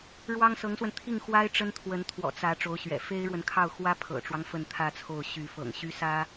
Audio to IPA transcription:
ɻ w ɑ˥ ŋ s ɤ˧˥ ŋ s w ə˧ n t̪ʰ i˥˩ ŋ x w a˥ ɪ̯ ʈ͡ʂ ə˥ n t̪ʰ w ə˧˥ n t̪ʰ w ɔ̰˨˩ t͡s ä˧˥ ʈ͡ʂ o˧˥ ʊ̯ ɕ ɥ ɛ̰˨˩ f e˥ ɪ̯ ɻ w ə˨ n kʰ ɑ˥˩ ʊ̯ x w ä˥ pʰ ɤ̰˨˩ ʈ͡ʂ w ɑ˦ ŋ f ə˥˧ n t̪ʰ ä˥˧ t͡sʰ o˥˩ ʊ̯ ɕ y˧˥ f ɤ̰˨˩ ŋ ɕ y˥ s ä˥

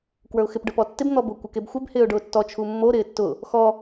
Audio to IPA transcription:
k w ə˞ ʊ̯ x ɪ p ɖ ə˞ p ɔ tː ɪ b n̪ ɔ b ʊ kʷ ɪ k e b xʷ ɪ b h ɪː ʊ̯ ɖ ʊː tː ɔ t͡ʃʰ u mː o ɾ ɪː tː ʊ | x ɔ

